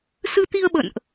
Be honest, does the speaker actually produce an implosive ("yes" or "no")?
yes